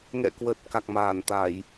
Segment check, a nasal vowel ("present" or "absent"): absent